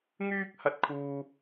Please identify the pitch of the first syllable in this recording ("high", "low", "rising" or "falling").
high